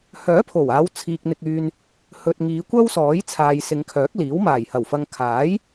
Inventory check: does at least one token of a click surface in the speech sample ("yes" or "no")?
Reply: no